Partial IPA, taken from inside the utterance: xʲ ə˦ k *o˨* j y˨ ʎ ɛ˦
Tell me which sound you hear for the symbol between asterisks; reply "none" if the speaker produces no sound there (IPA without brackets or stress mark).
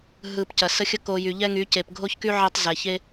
o˨